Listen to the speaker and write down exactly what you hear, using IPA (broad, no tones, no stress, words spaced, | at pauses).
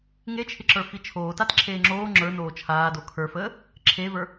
ŋet͡ʃʰɪǁə˞ fit͡ʃʰoːtat ǁʰeːŋ͡ǁoː ŋ͡ǁə˞noː t͡ʃʰaːdo kʰə˞fəː | ǁʰevə˞